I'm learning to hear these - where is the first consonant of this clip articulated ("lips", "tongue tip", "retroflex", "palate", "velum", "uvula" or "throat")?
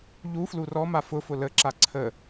palate